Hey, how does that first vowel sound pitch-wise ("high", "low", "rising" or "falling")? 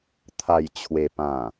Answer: low